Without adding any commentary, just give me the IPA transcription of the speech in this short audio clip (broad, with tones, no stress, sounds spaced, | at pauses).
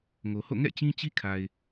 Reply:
ŋ o˨ h o̰˦˨ ŋ ɛ̰˦˨ t͡ɕ ĩ˦ t͡ɕ i˦ kʰ a˨ ɪ̯